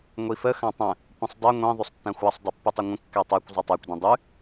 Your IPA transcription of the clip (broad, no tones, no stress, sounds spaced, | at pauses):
ŋʷ i f ə x ã tˤ ə̃ | kʷ ə̃ sˤ dˤ ɛ ŋʷ ĩ ðˤ ʉ sˤ tː ã xʷ a sˤ dˤ i pː ʉ tˤ ɛ ŋʷ ə̃ kː ɛ tˤ ɛ kʷ zˤ ʉ tˤ a kʷ d ĩ dˤ ʉ